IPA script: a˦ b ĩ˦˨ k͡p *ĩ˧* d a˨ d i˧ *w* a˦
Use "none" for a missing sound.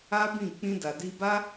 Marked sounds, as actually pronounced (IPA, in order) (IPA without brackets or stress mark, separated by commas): ĩ˧, b